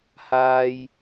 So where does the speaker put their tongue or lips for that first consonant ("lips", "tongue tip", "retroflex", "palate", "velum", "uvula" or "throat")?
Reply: throat